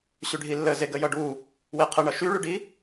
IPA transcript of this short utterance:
ɕyɖʱilːə zeɡəjʌɖu | weqʰəɳʌ ʃyɭyɖi

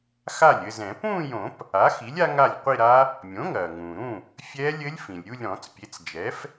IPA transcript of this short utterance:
xa˥˩lʲɘ˥˧zɛ̃˨˩˦ pũː˥˧jõ˨˩˦p | a˩˥xi˩˥lʲ a˦˥ŋa˥˩lʲqʷi˥˧ɾa˦˥ | mʲõ˩˥ŋɐː˩ŋũː˩ɾũ˥˩ | fʲɛː˦˥lʲɘ˦˥lʲ fĩ˩lʲ ɾʲu˥˧lʲɾɔ̃˨˩˦t͡spʲe˩˥t͡sd͡ʒɛ˩˥f

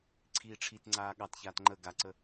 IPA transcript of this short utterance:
ǀʰiːʈ͡ʂʰitŋ͡ǀaː ɠɑtçaːt ŋ͡ǃə ɡaǀə

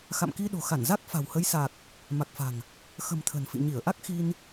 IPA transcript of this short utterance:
xa̰˧˨mki˧ɗo̤˨˩xa˧˩n za˦˥k̚fa̤˨˩whə˨˦j sa˨˩k̚ | ma˨˩k̚fa̤˨˩ŋ | xə̤˨˩m t̪ʰə̤˨˩nfḭ˧˨ ɲi˧˩ə̯ ʔa˦˥k̚xi˧n

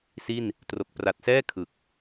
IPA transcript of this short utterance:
si˥˩n | tro˨˩k̚ pra˨˩t̚sɛː˥˩ kʰɯ˨˩k̚

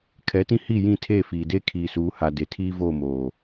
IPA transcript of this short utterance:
kʰɛ˨˦tĩ˦ hi˦˨ jĩ˦˨tʰe˦˨fiː˨de˦ kʰiː˨suː˨˦ha˨ de˨tʰiː˦voː˦˨moː˨

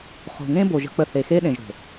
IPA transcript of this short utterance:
χo̤˨ŋẽ˦bo˨ ʒə̤˦k͡pə˦˨ θe˨xe˦ɗẽ˨ʒ ɾo̤˨

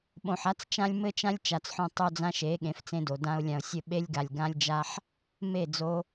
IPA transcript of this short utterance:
ɓõ˨ħa˦t͡st͡ʃã˦lʲ mɘ˦t͡ʃã˦lʲ t͡ʃa˨t͡sħõ˦ tˤo˦d͡zã˦ʃe˨˦ ɠẽ˨˦ft͡sẽ˦do˨ dã˧ʊ̯lʲã˨ʊ̯sʲɘ˦˨ ɓe˦lʲɡa˨lʲɡã˦lʲd͡ʒa˦ħ | me˦˨ d͡zo˦

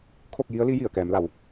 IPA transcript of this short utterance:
kʰo˥˨k̚ji˧˥ə̯li˧˥ ji˧˩ə̯kɛː˩˧mla˩˧w

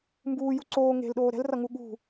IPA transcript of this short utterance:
mbuːju ǀoː ŋe̤lɗoː ɾɛ̤lrʌŋu ɠṳ

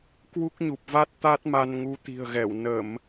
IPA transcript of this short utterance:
kwu˦˥k̚ɲu˨˩p̚va˦˥t̚ t̪a˦˥t̚ma˧nŋu˨˦ t̪i̤˨˩ə̯ɣɛ˧˩w nə˧˩˨m

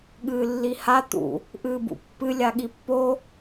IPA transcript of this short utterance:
ɠɨːlːiha t̪ṵ | ʔɨːbṵpːɨ lʲaɠipːo

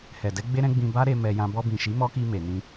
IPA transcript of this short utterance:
hɛ˨dɛ˨˦ ɡ͡be˦ɾɛ̃˦ɡ͡bĩ˧ba˦ ɾe˧ mɛ˧jã˧ bɔ˧bĩ˨ʃi˨˦ mɔ˦ki˧ me˨nĩ˧

